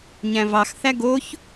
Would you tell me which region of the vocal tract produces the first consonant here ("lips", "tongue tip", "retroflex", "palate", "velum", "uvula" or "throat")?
palate